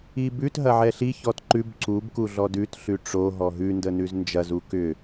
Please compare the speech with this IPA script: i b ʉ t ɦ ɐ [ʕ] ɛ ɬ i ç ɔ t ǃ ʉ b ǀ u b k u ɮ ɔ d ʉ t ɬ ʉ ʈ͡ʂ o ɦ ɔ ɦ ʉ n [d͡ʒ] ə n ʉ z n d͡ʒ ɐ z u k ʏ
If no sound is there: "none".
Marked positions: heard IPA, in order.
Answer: ʕ, d

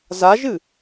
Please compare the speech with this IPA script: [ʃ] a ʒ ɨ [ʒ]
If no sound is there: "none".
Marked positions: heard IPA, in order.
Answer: z, none

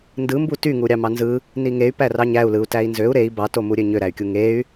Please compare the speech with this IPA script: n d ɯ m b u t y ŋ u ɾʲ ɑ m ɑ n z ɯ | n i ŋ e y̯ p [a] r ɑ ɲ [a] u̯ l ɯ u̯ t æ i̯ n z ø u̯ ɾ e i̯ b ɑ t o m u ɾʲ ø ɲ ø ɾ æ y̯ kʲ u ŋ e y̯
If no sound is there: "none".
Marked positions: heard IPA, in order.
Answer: æ, æ

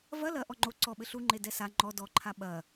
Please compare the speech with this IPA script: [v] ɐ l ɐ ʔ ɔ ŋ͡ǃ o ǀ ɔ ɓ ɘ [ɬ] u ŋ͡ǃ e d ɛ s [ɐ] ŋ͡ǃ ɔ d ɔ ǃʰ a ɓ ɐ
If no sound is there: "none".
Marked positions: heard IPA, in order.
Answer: v, ɬ, a

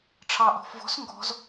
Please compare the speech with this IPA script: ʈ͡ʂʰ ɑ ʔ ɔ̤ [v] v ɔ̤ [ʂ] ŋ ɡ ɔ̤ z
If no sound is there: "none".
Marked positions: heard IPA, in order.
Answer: f, s

